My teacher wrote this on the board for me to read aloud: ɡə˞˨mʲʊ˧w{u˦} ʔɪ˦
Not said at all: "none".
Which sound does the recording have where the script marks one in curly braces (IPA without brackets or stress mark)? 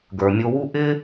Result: u˦